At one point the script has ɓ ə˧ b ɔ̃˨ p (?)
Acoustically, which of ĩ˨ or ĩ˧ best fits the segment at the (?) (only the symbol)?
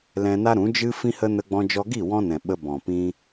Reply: ĩ˧